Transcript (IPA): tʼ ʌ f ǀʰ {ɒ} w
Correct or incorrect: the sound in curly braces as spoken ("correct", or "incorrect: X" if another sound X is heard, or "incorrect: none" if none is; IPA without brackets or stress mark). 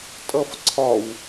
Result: correct